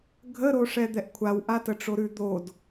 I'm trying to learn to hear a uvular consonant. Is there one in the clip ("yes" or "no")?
no